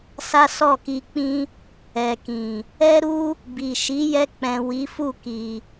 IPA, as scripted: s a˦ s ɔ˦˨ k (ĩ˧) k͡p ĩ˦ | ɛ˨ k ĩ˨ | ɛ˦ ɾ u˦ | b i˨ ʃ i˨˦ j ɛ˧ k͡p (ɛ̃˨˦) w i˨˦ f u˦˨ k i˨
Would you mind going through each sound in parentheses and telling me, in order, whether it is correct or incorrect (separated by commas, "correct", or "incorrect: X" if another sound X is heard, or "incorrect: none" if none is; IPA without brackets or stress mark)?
incorrect: i˧, incorrect: ɛ̃˨